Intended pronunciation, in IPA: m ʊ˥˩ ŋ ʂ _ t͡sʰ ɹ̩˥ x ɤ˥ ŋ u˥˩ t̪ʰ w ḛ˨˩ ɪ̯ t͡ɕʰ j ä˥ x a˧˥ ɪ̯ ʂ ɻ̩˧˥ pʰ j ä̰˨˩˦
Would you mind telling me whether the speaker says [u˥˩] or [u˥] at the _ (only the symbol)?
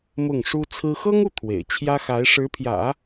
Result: u˥